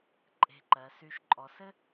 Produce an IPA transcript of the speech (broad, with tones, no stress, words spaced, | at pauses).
ǃʼe̤˧˩ǃɜ˩˧sy˧ʃ ǃʼɔ˩˧sɘ˥